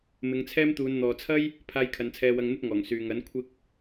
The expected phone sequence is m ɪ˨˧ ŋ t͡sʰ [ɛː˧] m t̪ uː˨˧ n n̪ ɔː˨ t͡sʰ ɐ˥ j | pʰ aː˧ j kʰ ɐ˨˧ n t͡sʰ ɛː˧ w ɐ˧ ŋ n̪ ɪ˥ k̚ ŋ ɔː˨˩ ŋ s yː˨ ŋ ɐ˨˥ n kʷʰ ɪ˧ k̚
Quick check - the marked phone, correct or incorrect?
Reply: incorrect